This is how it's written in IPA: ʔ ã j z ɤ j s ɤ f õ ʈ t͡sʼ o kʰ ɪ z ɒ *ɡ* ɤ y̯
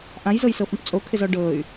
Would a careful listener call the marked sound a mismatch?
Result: yes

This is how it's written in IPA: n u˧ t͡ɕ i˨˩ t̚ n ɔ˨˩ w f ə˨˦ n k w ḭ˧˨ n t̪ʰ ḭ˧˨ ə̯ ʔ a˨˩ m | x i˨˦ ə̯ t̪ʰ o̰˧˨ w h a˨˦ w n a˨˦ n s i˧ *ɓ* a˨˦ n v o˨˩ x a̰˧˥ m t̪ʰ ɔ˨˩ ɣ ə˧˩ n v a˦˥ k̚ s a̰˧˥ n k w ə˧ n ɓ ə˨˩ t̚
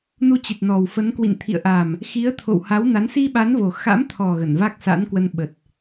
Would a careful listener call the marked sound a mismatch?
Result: no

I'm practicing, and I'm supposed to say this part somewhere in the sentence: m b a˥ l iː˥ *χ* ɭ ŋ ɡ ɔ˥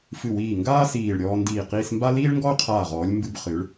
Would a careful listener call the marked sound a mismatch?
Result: yes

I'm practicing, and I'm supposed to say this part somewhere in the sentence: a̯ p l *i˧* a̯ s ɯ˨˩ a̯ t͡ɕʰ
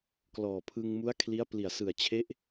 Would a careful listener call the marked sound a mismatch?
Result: yes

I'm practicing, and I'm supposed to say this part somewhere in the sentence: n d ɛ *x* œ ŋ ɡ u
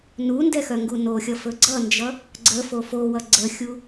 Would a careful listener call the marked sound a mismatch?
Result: no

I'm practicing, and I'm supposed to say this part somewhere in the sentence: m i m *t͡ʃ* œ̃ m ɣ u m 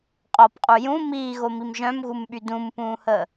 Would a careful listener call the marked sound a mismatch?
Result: yes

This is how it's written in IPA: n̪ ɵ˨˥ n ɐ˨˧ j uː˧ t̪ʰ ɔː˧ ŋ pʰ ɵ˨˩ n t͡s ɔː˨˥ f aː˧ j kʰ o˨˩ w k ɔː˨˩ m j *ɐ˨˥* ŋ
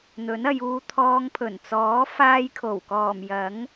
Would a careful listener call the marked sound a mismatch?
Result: no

